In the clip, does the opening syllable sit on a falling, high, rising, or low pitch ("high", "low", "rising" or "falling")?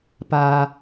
high